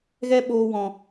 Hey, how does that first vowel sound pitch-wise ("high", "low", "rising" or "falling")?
high